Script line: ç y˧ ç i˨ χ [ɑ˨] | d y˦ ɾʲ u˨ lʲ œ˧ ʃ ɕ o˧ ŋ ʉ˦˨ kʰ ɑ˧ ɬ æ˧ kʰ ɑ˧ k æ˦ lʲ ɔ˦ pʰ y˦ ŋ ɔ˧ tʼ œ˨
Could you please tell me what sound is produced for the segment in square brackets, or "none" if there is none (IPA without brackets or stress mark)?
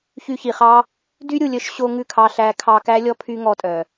ɑ˦